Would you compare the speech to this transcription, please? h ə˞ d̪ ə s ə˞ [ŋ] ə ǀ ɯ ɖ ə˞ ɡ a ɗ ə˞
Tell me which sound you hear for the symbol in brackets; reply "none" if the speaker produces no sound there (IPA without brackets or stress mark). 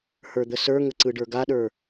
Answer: ŋ